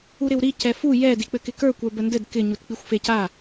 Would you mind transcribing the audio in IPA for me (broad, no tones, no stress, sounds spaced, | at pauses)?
u ɾ ɪ w ɾ i c ɛ f u j ɛ d i k͡p ɘ k ɪ k ə˞ kʷ ə˞ b ə n d ɘ d k ɪ ɲ u t k͡p i xʷ f e c a